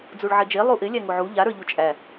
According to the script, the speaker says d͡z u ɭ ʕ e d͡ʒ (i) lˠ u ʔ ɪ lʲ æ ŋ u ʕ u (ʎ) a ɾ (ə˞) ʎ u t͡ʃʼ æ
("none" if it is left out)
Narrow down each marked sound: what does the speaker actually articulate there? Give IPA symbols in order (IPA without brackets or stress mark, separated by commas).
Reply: e, ʎ, ə˞